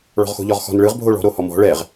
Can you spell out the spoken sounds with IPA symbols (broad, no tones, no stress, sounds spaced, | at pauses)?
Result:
ɭ ɔ̤ ʁ x o̤ ʎ ɔ ʁ x ɔ̤ n ɭ ɯ ʁ bʱ o ɭ ɔ̤ ɾ o h ɔ m ɔ̤ ɭ ɛ ʁ